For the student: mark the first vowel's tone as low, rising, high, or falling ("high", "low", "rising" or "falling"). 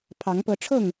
rising